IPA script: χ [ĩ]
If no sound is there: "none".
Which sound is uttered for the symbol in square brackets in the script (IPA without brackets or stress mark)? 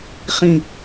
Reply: ĩ